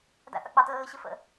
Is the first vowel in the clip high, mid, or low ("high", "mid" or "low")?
low